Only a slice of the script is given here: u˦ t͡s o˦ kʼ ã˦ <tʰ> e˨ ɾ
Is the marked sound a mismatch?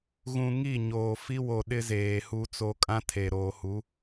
no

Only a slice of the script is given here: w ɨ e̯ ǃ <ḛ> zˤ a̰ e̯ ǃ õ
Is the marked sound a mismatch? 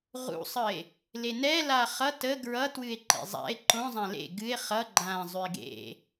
no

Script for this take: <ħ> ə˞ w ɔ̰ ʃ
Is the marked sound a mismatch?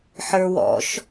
no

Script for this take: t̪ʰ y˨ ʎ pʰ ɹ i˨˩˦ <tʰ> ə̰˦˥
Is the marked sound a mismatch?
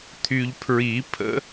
yes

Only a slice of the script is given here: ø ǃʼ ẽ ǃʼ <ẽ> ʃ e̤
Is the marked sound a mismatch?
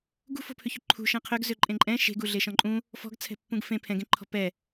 yes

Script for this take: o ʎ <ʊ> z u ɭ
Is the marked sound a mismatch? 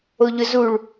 no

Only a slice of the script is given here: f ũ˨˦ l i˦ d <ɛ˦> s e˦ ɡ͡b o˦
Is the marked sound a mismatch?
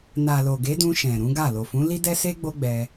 no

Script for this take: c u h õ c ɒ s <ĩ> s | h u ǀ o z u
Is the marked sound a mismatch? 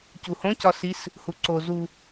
yes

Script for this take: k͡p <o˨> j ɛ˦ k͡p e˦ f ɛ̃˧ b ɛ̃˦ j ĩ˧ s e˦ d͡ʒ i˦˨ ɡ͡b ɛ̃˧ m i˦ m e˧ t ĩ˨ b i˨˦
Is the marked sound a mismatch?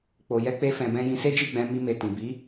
yes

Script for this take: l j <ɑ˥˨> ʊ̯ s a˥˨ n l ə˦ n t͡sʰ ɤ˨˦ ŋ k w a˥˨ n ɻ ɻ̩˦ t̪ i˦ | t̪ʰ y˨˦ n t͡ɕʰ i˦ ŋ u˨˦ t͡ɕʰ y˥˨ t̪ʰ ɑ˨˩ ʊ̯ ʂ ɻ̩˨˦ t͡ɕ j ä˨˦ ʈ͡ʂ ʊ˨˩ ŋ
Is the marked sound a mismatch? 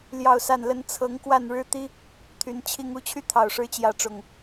no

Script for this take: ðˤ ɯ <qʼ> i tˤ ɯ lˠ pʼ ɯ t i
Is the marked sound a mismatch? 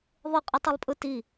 no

